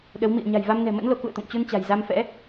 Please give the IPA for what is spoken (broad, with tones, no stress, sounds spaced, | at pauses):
ɗ ə˨˦ w m ḭ˧˨ ə̯ ɲ a̤˨˩ j v a˧ m n ɛ̤˨˩ m ə̰˧˥ n l o˨˦ k ṵ˧˨ ə̯ t̪ o̰˧˨ ŋ t͡ɕ u˧ n t͡ɕ a̤˨˩ j z a˧ m f ɛ̰˧˥